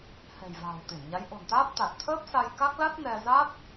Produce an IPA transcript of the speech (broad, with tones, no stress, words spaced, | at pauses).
hɛ̤˨˩jva̤ː˨˩wt̪i˧˩nɲa˨˦j ʔo̤˨˩nt̪aː˦˥p̚ t̪a˨˩t̚t̪ʰəː˦˥p̚sa˧j ka˦˥k̚la˦˥t̚ nɛ˧ za˦˥t̚